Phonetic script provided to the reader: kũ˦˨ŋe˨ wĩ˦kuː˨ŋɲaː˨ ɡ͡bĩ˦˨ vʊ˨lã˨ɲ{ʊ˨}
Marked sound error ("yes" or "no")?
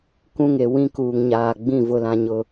no